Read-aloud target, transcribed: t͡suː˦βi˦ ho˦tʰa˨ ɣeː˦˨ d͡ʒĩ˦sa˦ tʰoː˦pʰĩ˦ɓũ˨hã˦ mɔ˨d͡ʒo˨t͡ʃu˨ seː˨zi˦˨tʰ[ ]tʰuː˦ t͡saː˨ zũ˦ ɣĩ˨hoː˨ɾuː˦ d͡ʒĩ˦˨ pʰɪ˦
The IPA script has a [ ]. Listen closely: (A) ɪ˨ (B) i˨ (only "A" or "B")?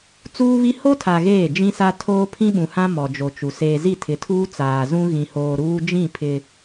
A